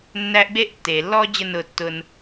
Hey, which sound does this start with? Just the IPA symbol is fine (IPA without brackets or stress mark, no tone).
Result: nː